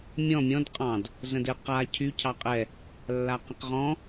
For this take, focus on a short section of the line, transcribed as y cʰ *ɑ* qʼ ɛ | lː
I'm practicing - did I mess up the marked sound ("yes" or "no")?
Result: no